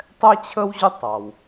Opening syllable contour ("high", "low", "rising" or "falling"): high